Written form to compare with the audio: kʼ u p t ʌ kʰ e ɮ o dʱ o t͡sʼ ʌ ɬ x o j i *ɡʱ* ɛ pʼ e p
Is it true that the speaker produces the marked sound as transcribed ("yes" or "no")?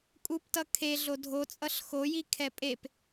no